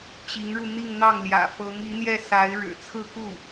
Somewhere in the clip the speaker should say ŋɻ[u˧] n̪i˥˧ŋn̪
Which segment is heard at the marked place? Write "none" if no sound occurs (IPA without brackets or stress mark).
u˧